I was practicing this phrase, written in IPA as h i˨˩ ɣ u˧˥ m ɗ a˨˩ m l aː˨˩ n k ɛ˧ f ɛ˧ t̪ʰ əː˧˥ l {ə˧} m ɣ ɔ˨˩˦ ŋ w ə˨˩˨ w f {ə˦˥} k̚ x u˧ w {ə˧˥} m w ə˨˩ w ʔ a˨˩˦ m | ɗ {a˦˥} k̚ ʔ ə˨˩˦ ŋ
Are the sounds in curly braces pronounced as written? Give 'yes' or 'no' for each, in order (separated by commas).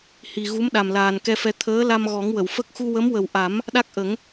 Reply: no, yes, yes, yes